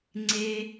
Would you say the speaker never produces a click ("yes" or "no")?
no